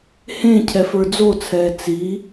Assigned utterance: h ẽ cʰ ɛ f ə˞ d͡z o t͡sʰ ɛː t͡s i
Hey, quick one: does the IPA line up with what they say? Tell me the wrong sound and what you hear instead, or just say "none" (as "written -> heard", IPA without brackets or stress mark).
none